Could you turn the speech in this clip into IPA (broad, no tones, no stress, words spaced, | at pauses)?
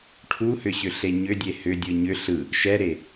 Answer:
ʈʰuhʏɕʏɬe ɲʏdʲe hʏdʲɯ ɲʏ ɬɯ | ʃɛɾe